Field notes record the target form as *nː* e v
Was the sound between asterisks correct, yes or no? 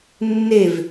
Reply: yes